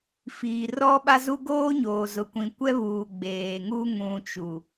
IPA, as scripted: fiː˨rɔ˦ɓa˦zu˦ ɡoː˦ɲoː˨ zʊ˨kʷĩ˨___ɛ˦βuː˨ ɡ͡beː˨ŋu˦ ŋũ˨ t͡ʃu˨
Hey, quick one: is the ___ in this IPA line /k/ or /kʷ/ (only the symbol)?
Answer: kʷ